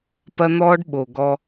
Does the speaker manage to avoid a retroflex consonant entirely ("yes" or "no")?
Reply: no